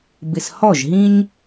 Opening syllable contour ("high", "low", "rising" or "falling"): low